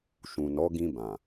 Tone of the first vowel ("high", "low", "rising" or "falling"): low